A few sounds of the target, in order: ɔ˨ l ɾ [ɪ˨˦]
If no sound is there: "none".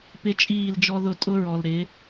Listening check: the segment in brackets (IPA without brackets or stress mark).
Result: ɪ˨˦